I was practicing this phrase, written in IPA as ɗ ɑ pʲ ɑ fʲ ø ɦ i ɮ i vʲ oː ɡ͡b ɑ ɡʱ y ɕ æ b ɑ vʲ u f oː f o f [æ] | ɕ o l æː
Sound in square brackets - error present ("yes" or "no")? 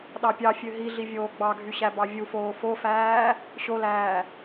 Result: yes